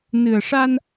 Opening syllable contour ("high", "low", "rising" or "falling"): low